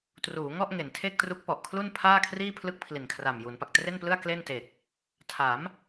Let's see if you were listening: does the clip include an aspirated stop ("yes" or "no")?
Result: yes